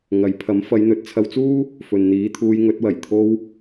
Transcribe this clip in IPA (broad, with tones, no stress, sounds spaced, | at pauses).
ŋ ɐ˨˥ j pʰ ɐ˨˥ m f ɐ˨˧ j n̪ ɵ˨˥ t̚ t͡sʰ ɐ˧ w t͡s uː˥ | f ɵ˨ n n̪ iː˨˥ t̪ʰ uː˧ j ŋ ɵ˨˥ t̚ w ɐ˨˩ j t̪ʰ o˧ w